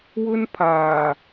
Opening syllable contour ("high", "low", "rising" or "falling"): high